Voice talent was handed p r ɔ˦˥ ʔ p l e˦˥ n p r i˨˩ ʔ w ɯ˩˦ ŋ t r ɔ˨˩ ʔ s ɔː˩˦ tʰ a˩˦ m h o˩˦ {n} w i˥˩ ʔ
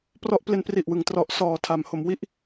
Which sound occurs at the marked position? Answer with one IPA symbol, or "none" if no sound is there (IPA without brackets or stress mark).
m